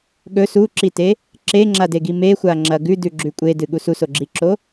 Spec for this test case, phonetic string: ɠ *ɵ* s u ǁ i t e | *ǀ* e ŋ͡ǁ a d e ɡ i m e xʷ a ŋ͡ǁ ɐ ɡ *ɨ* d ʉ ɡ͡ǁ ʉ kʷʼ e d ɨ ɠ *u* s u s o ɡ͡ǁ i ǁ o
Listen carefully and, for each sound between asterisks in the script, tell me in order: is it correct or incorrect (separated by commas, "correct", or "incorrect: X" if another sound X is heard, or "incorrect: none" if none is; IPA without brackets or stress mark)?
correct, incorrect: ǁ, incorrect: ʉ, correct